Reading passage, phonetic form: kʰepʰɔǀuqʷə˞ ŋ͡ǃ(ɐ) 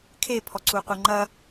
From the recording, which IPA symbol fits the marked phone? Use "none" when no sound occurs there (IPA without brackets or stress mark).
ɐ